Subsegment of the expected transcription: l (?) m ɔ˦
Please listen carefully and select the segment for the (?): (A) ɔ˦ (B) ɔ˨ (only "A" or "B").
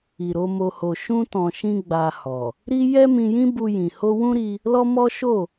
A